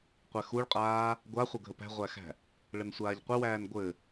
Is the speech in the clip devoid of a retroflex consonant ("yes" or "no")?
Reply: no